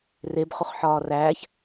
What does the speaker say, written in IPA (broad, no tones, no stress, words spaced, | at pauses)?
reb χuχħɒːræːç